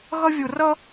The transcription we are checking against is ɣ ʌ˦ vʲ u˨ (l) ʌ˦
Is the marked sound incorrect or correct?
incorrect